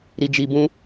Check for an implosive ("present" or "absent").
absent